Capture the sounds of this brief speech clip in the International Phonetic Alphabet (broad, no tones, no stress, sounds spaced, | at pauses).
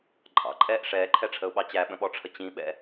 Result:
ǃʼ ɑ̰ ǃʼ ɛː ʔ ʂ ɛː ǃʰ ɛ ʈ͡ʂʰ ə ʊ̯ ɓ ɑ t͡ɕ æ ɓ ə̃ ɓ ɔ ʈ͡ʂʰ ə t͡ɕ ĩ ɓ ɛ̰